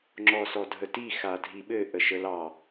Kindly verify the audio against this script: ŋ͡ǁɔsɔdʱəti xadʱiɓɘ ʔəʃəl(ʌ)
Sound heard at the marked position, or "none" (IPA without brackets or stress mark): ɑ